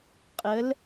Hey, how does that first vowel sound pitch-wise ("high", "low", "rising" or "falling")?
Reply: rising